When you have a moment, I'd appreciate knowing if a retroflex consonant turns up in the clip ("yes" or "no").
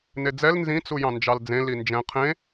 no